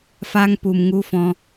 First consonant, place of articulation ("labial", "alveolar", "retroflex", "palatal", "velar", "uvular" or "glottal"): labial